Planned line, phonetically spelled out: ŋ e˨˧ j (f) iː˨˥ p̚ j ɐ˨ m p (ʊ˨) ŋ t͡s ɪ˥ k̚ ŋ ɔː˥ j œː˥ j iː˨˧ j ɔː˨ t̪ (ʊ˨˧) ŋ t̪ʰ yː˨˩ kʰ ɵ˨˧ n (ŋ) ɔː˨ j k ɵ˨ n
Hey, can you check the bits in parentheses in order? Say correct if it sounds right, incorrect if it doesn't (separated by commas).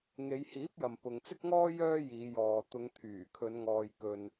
incorrect, correct, correct, correct